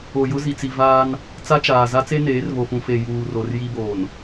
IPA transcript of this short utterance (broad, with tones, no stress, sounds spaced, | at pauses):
o˨ j ʊ˦ z i˨ t͡s i˨ v aː˦ n | t͡s a˦ t͡ʃ aː˨ z a˦ t͡s e˦ n eː˨˦ r β o˨ f ũ˨ f e˨ j uː˨ r o˨ r j i˦ b oː˨ n